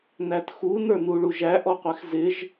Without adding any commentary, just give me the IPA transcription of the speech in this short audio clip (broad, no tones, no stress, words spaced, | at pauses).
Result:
nætxu nə˞nuɭuʒæ ʔɔqʷɛxzɪʒ